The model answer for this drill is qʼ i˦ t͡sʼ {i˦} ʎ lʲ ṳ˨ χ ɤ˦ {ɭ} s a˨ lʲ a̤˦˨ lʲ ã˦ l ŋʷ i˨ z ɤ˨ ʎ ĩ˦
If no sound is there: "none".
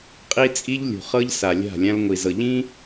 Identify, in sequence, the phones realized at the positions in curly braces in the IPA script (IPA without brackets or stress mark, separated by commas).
i˦, ʎ